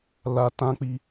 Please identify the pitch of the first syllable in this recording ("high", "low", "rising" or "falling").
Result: low